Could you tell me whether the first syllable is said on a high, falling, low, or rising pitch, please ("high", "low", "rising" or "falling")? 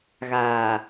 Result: low